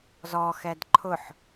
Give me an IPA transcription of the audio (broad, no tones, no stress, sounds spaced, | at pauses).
z ɔ x ɛ d ǃʰ ʊ ħ